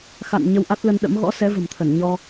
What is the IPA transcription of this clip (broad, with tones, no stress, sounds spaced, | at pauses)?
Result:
x a̰˧˨ n ɲ ə˧ w ʔ a˦˥ t̚ l ə˧ n ɗ ə̰˧˥ m ɣ ɔ̰˧˥ s ɛ˨˦ v ə̤˨˩ m t̪ʰ ə˧˩ n ɲ ɔ˧